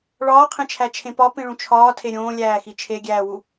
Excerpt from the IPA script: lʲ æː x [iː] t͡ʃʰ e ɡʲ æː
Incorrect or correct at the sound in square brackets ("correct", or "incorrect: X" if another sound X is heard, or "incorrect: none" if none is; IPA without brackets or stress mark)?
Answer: incorrect: i